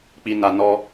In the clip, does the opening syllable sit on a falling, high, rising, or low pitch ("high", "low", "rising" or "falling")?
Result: low